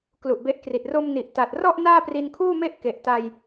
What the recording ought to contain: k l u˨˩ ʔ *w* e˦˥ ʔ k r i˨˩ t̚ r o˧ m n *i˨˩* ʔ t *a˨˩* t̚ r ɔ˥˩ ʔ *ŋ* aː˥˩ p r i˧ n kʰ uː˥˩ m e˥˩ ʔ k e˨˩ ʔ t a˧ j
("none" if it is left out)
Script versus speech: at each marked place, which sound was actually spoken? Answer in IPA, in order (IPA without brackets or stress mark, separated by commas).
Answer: b, i˨˩, a˨˩, n